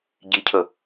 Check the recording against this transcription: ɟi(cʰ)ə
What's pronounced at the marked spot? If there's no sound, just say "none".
cʰ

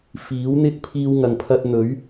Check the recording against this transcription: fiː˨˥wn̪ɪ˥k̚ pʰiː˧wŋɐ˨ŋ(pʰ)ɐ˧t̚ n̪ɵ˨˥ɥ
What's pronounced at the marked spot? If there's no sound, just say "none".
pʰ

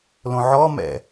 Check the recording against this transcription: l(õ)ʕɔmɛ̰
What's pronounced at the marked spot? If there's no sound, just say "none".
õ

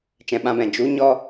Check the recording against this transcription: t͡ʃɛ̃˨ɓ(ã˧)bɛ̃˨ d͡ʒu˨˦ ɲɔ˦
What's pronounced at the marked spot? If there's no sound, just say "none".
ã˧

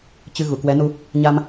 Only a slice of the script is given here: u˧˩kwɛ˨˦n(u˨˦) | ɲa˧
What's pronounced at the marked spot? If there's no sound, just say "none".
u˧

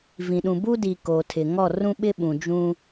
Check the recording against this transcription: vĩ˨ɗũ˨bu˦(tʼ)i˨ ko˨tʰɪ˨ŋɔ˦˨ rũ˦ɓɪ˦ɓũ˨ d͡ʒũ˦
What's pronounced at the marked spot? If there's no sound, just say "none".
d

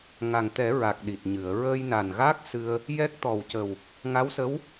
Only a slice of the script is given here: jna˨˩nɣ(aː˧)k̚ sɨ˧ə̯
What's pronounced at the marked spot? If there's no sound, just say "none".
aː˦˥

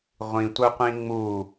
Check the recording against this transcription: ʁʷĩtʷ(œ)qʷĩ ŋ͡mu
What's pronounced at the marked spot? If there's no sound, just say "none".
œ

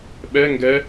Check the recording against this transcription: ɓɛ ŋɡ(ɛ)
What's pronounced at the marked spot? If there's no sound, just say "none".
ɛ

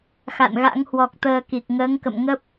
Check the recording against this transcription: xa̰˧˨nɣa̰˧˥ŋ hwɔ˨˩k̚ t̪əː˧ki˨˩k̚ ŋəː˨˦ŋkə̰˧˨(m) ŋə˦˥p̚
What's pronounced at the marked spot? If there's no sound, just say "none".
m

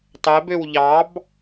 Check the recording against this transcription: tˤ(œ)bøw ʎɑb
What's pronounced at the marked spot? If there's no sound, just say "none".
ɛ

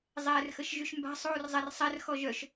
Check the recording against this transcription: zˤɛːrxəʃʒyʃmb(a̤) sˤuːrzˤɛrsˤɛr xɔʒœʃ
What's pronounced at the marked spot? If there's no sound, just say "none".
a̤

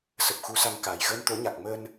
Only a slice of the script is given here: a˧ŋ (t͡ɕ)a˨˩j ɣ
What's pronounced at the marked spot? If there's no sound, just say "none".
k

